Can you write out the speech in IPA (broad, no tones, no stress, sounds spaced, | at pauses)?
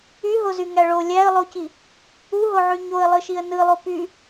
y ɦ o z y ŋ æ ɭ o lʲ æ ə̯ lˠ o c i | u ɦ o ʕ y ɲ o ə̯ lˠ ɯ ʃ i ə̯ n ɯ lˠ o p y